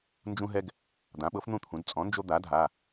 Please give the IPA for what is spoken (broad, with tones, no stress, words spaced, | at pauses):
nd͡ʒũ˦ɦɛ˦ɡ | d̪ã˩˥ɓɤ˩˥fn̪ũ˥˨t̪ʰũ˩˧d t͡sʼɔ̃˩˥nd͡ʒo˦d̪a˩˥ dʱa˩˧˩